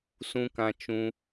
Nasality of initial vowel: nasal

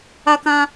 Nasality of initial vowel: oral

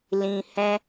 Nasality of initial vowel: nasal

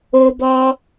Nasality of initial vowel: oral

